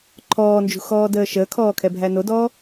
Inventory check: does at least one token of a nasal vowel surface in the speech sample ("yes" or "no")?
no